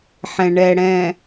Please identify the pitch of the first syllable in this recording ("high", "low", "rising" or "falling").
low